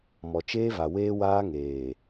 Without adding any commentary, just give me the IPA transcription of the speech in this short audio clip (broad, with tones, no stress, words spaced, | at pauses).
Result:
mɔ˨t͡ʃeː˦va˨ weː˦waː˦ŋeː˨